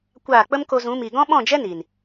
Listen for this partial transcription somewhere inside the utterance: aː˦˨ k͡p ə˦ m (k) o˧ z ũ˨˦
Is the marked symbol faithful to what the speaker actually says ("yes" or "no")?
yes